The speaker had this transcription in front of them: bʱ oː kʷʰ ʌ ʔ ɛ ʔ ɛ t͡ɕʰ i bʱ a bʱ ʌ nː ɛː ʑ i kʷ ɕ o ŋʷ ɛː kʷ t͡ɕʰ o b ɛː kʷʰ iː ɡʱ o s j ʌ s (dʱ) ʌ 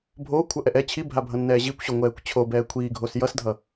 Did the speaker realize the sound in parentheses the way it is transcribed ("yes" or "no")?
yes